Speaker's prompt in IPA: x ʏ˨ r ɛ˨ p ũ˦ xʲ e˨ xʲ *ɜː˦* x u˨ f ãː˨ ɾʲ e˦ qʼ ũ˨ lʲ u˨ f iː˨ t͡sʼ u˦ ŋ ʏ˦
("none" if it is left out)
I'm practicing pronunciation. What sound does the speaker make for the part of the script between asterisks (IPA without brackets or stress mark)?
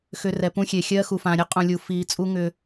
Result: ɜː˦